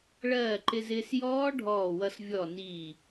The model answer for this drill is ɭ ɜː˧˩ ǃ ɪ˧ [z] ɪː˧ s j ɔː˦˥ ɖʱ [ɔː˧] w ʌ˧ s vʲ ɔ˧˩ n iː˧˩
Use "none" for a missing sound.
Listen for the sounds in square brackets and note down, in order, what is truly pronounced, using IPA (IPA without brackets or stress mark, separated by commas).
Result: z, ɔː˧˩